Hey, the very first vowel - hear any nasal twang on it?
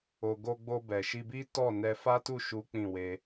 no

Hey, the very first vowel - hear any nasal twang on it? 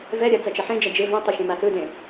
no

